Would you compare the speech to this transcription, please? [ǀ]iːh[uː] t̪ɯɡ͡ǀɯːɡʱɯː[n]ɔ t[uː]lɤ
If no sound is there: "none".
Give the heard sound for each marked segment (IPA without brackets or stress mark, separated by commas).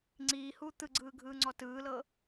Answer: ŋ͡ǀ, uː, ŋ͡ǀ, ɯː